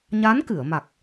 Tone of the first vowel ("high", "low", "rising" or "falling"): rising